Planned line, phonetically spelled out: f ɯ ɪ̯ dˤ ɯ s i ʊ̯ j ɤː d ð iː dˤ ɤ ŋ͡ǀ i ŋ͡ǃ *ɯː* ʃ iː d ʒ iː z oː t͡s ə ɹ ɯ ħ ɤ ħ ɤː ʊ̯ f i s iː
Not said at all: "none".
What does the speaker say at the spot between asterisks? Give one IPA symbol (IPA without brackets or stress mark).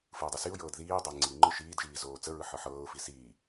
ɯ